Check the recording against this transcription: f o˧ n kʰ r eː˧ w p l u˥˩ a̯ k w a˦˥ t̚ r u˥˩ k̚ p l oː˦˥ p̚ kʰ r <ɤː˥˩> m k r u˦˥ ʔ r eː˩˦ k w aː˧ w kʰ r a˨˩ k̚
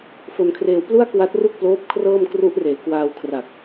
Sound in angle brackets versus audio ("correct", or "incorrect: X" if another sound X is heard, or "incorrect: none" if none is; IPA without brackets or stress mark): correct